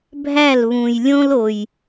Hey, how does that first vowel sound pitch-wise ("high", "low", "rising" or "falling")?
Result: falling